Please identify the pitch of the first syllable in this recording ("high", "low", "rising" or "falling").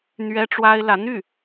high